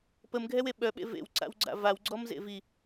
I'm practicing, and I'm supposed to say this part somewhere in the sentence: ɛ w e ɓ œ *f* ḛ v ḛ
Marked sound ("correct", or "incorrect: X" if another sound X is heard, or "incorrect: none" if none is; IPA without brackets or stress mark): incorrect: ɓ